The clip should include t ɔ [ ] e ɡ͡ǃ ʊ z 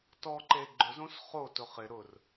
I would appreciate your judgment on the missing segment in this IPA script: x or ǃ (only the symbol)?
ǃ